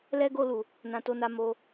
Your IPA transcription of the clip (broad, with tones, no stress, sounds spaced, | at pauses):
l ɛ˧ ɡ o˧ l u˨ | n ã˨ t o˧ n a˧ m o˧